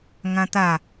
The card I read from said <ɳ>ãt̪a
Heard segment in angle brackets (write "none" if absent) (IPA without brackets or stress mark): ŋ